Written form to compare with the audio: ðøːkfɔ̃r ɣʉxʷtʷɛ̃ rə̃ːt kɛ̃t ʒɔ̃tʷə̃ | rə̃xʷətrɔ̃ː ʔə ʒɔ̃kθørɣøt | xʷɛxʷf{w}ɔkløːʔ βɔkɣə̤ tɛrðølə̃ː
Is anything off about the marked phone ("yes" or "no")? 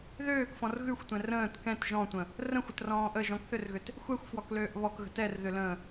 no